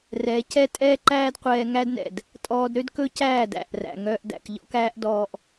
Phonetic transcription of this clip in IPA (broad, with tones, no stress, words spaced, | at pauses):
rɛ˨˦ cɛ˦tʼɛː˦ǃæː˦dqʷɛː˧ ŋæ˦dnɛ̰˨d | tʼɔː˧dɾø˦d kɵ˦cæː˦˨d æ̰˦˨ʔræ̰˨ ŋœː˧ʔdæ̰˨kʎɔ̰˦k æː˦ʔdɔː˧ʔ